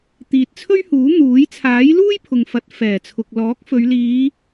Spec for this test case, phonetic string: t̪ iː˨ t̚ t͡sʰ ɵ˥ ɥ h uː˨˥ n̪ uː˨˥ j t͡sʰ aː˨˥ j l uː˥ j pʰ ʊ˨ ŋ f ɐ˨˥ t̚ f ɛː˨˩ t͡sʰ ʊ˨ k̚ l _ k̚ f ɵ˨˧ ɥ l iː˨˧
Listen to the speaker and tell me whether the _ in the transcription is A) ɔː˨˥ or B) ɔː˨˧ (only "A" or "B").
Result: A